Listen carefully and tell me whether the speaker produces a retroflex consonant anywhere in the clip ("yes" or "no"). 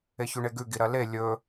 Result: yes